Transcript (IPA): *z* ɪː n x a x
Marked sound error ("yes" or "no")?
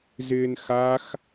no